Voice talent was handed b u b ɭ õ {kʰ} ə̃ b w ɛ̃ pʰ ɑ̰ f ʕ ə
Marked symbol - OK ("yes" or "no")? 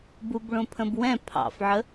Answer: no